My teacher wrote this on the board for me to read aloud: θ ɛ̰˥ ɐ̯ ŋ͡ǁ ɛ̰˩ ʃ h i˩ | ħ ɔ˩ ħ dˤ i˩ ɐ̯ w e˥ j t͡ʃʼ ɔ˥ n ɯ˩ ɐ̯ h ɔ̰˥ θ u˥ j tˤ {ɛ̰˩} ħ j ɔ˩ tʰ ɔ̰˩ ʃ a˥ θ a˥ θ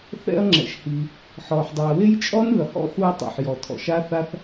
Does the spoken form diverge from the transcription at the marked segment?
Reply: no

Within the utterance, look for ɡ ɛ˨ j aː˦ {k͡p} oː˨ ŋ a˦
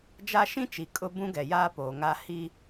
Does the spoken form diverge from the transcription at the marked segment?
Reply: yes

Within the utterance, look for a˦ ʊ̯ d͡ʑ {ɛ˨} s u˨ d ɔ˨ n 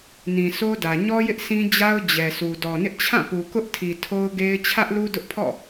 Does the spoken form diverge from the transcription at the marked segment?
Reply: no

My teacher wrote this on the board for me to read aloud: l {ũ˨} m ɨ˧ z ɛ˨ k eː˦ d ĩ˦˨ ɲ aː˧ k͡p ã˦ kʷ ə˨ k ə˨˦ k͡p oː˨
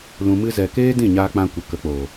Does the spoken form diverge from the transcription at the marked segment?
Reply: no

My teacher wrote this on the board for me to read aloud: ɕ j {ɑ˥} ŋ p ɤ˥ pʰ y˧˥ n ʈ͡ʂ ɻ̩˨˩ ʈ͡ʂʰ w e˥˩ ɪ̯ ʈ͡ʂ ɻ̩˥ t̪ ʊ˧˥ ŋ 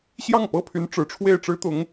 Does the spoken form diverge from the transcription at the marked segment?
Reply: yes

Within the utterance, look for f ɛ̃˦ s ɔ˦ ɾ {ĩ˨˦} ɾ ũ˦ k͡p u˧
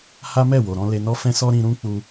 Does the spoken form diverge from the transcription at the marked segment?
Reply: yes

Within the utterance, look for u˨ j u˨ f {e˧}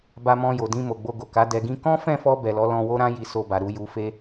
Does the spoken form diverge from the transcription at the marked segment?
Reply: no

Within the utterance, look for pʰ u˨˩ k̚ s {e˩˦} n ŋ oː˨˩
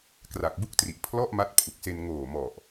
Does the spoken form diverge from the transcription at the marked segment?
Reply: yes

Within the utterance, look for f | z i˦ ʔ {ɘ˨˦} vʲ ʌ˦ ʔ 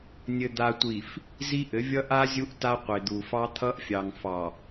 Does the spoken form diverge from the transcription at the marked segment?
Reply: no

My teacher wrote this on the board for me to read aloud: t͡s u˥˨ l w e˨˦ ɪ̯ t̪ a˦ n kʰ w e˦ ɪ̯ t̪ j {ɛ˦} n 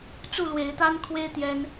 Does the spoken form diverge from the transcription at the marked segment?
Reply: no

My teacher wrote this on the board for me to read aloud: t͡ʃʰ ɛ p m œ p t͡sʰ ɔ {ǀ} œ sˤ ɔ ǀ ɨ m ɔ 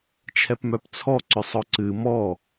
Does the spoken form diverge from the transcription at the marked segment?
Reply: no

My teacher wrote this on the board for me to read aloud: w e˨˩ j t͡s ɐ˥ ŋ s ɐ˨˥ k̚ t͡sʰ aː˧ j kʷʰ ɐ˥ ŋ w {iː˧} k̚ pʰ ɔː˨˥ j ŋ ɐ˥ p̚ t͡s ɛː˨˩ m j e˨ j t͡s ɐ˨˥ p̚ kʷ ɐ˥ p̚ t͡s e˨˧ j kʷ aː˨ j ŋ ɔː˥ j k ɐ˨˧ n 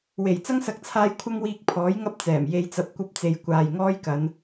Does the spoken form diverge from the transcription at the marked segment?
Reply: no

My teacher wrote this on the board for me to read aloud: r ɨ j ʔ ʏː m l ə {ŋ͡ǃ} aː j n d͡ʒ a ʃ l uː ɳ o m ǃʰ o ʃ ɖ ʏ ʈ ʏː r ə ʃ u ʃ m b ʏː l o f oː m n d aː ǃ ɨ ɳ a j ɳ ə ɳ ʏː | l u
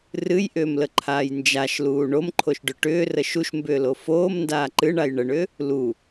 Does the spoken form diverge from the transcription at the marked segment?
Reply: yes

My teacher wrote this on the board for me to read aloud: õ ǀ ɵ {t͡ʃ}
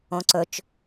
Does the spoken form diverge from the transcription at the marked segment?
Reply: no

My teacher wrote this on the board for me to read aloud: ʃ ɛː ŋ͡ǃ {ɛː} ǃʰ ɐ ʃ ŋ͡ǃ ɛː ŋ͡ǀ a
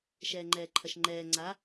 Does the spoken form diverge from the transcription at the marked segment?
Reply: no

